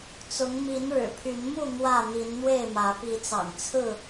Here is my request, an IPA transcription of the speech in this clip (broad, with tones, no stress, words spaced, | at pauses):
t͡sʊ˨˦ŋ mi˨˦n ɻɻ̩˨˩pʰy˨˦n mu˥˨ n̪wä˥˨ n̪i˨˦nn̪we˥˨ɪ̯mä˨˦ pi˨˦t͡sɑ̰˨˩ŋ t͡sʰɹ̩˥˨